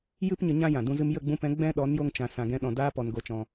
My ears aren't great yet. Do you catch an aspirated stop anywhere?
no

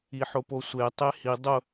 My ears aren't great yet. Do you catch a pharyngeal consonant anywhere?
yes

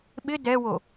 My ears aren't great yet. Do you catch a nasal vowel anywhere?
no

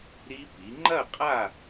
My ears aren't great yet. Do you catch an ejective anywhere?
yes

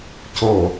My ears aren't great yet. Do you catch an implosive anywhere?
no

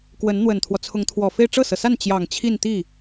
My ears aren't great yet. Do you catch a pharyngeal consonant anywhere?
no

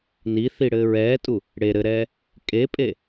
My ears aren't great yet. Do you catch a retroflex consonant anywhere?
yes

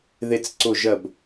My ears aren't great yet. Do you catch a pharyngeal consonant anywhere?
no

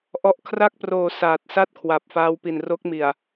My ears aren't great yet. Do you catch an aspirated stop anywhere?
yes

